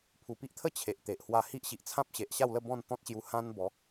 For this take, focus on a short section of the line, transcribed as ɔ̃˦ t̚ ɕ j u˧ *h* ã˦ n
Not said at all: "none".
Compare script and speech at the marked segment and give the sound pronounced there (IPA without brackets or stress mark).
h